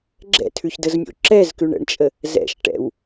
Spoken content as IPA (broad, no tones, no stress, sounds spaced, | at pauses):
ɡ͡ǁ ɛ̰ tʰ ʉ ç d ə z mʲ o̰ ǁ ɛ z k ʉ ɳ ə̰ ɳ t͡ʃʼ ə | z ɛ̰ ʃ ʈ ɛ̰ w